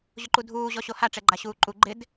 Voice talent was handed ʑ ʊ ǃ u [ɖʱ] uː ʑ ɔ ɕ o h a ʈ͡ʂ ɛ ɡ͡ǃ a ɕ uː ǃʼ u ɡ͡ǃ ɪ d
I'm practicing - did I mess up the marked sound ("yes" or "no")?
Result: yes